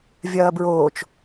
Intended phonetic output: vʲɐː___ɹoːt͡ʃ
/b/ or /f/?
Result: b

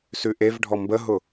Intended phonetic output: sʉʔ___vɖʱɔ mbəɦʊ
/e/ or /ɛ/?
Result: e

